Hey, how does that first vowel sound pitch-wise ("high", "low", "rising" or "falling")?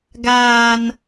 low